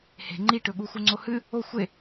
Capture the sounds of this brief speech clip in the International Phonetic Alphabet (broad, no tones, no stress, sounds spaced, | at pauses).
h e̤ ŋ͡ǃ i ʈ ɵ ɠ u x u ŋ͡ǀ o h ɨ | o xʷ e